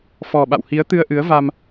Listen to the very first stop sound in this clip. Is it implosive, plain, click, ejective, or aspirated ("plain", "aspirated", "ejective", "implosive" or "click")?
implosive